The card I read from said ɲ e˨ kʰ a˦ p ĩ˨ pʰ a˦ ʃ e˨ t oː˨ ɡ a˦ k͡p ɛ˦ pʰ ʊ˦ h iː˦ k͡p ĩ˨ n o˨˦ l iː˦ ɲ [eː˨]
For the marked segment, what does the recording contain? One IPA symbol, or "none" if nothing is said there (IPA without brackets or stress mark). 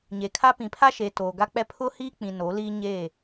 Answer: eː˦˨